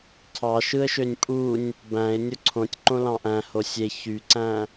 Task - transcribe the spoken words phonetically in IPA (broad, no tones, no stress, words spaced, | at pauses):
tʰɑʃɯə̯ʃønʲ pʼunʲ | bæ̃ɪ̯ nʲoǀʰõtʲ ǃõlɑ̃ʔæ̃ hosʲe çyǀæ̃